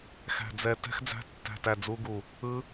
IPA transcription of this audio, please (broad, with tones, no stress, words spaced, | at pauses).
xæ̤˦˨d͡zɛ˦˨ tɛ̤˦˥xd͡zæ̤˦˥tːæ̤˦˨tæ˦˨ d͡zu˦˥ɡu˦˨ | ɯ˦˥